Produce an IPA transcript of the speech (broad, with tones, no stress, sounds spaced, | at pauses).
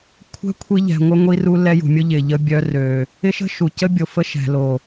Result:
kʷʰ ɛ̤˦ kʷʰ i˧ ʎ ɛ̤˨ ŋʷ ə˧ ŋʷ i˧ r u˧ l ɛ˧ j ṳ˨ mʲ ʊ˧ ʎ ɪ˨ ʎ ə˧ bʲ œ˧ r ø˨ | ɪ˦ ʃ ə̤˦ ʃ u˨ c ə˦ bʲ o˨ f ə˧ ʃ ɛ̤˨ l o˨